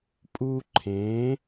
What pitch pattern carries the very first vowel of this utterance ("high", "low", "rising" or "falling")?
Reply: high